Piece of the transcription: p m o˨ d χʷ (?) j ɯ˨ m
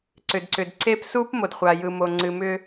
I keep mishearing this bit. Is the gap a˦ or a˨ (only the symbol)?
a˨